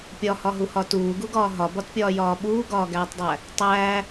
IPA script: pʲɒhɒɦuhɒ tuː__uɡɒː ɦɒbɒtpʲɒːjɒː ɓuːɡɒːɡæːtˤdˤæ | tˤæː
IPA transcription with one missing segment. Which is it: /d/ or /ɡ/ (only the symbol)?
ɡ